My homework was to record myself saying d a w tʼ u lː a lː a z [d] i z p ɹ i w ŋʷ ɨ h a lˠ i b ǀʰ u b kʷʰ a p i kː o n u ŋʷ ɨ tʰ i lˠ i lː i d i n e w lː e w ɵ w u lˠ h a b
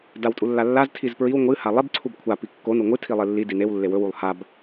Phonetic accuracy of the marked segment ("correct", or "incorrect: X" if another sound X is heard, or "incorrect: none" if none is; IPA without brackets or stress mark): incorrect: tʰ